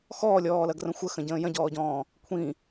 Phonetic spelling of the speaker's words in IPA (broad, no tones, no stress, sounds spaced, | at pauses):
x ɔː lʲ ɔː l ɐ ɡ r ə̃ xʷ ə x ə̃ ɟ ə̃ː j ɐ̃ ɟ ɔː ɟ ɔ̃ː | kʷʰ ĩ